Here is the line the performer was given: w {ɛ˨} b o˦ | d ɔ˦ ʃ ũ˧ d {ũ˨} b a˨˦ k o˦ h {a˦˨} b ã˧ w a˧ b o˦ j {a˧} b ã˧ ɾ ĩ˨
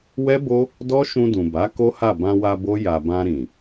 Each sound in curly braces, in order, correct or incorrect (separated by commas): incorrect, correct, correct, correct